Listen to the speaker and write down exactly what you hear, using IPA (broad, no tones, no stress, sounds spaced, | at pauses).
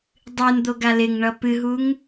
dˤ ɨ n d̪ o ɡ a l ɪ ŋ ɳ ʌ p ɨ ɦ u ŋ